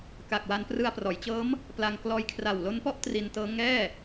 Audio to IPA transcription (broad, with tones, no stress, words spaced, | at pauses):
ka˨˩k̚wa˧n prɯ˧a̯prɔː˩˦jt͡ɕɤː˦˥m | pla˧ŋ klɔː˧jkʰra˨˩wlo˦˥npɔ˥˩ʔ tri˧ntɤː˦˥ ŋɛː˥˩